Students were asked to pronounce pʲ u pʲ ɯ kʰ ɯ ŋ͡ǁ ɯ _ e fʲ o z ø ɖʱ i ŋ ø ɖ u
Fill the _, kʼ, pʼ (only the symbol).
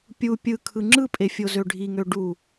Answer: pʼ